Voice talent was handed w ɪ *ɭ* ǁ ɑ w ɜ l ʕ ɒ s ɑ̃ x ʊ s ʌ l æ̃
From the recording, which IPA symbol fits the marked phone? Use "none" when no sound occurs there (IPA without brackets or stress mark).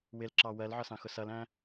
l